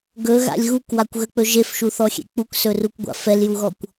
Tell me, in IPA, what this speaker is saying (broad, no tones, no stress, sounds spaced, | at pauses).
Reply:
ɡ ɵ ɣ a̰ lʲ ɣ u k w a kʷ ɣ ə k͡p ɵ ʒ e f ʃ u θ ɔ xʲ ḛ k͡p u k s ɵ r u kʷ ɡʷ a̰ f ɛ l j u ɣ ɔ kʷ